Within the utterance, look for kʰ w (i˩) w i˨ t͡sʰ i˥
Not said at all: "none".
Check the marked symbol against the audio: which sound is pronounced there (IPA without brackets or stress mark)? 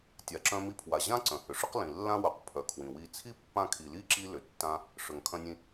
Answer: ĩ˩